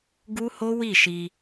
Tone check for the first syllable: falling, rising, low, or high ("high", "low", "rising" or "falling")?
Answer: high